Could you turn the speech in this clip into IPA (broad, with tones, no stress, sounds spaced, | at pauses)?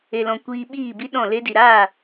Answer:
e˨ l ɔ̃˨ kʷ iː˧ ɓ iː˦˨ b i˦ ɗ ɔ̃˦˨ l e˧ d i˨ ɾ aː˦˨